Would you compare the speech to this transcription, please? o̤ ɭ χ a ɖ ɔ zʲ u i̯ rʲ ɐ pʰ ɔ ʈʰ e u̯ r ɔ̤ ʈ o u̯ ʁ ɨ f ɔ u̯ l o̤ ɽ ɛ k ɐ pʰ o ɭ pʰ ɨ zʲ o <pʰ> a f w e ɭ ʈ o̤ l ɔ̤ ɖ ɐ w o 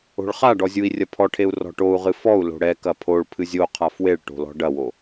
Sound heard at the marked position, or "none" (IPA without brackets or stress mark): qʰ